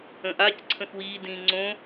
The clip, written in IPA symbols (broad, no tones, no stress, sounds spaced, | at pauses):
ə̃ ʔ a c ǀʰ ə̃ x w iː d ĩː ŋ͡ǀ õ